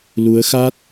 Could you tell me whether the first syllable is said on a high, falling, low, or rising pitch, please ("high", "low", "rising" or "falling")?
rising